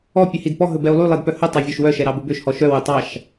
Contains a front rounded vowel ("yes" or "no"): yes